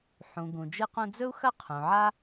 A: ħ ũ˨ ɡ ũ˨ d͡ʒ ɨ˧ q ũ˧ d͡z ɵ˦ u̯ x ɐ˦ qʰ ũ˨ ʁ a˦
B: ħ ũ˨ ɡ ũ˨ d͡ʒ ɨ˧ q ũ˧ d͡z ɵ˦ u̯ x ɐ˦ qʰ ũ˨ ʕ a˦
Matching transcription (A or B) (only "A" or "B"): B